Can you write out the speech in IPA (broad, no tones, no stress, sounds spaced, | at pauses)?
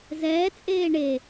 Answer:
z ɛː t͡sʼ eː ɳ e